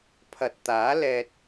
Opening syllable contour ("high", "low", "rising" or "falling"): low